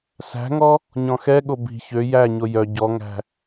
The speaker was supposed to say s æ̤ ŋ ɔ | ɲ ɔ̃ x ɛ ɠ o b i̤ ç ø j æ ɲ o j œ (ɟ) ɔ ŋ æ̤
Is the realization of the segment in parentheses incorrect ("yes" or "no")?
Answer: no